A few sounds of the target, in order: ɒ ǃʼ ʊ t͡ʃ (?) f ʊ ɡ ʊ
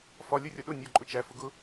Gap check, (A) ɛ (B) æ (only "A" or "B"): B